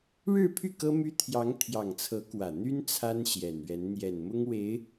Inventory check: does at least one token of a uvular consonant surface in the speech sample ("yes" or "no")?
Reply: no